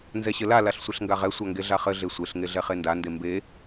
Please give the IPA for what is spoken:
n z ɛ ɕ ɘ l a l a ɬ sʷ e ɬ ŋ ɡ a ʁ ɛ sʷ a ŋ ɡ e ɮ a χ ɘ ɮ e sʷ e ɬ ŋ e ɮ ɛ χ e n d a n d e m b e

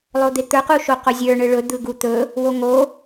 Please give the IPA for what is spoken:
lˠ o d̪ e t̪ ə˞ q u ʃ o q o zʲ ə˞ ɳ ɯ ɭ ɵ d̪ ɯ ɡ u t̪ ɵ | w o ŋ o

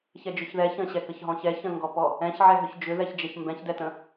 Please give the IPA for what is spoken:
ç ɛ d͡ʒ ʏ ç ð ɛ ç ə̃ ɕ ɛ k ə ç ɦ ɔ̃ ç ɛ ç ə̃ ŋ ɡ ɔ p ɔ | ɛ̃ ç ʕ ɛ ɦ ʏ ç d͡ʒ ʏ ð ɛ ç d͡ʒ ɛ ç m b ɛ̃ ç d ɛ t ə̃

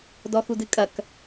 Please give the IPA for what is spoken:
d ɔ x u d ɨ kʼ ɐ k

